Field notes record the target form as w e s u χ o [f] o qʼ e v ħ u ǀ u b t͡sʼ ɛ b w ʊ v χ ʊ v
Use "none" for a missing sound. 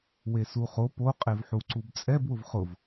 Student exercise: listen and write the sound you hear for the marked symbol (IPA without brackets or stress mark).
p